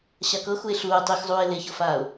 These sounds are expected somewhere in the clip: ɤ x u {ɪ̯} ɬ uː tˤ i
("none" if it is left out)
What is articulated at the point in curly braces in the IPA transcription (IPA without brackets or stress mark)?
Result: ɪ̯